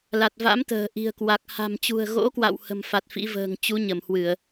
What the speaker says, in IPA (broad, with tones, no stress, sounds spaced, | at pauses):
l a˨˩ t̚ v a̰˧˥ m t̪ ə̤ː˨˩ ʔ i̤˨˩ ə̯ k w a˨˩ k̚ h a̤˨˩ m t͡ɕ ṳ˨˩ ə̯ ɣ o̰˧˥ k w a̰˧˨ w h ə̤˨˩ m f a˨˩ t̚ f ḭ˧˥ v ə̤ː˨˩ ŋ t͡ɕ u˨˦ ɲ ə˧˩ m h w ɨ˧˩˨ ə̯